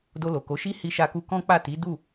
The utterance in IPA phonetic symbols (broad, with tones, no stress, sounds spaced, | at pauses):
d o˧ l o˨ k o˨˦ ʃ i˦ h i˧ ʃ a˧ k u˧ k ɔ̃˦ k͡p a˦˨ t i˨˦ d u˦˨